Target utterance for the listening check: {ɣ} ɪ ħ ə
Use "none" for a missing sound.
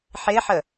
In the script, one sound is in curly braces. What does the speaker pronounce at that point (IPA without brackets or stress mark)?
ħ